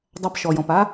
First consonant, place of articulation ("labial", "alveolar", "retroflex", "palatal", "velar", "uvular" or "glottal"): alveolar